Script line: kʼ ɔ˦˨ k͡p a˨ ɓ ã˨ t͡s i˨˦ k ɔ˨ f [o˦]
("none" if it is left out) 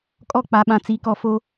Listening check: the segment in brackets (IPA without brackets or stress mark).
o˦